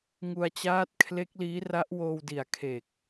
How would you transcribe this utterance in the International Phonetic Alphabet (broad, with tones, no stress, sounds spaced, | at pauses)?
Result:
ŋ u˧ a̯ t͡ɕ aː˦˥ t̚ kʰ l e˦˥ k̚ l iː˦˥ r a˦˥ ʔ w oː˧ w d i˨˩ a̯ kʰ e˨˩ k̚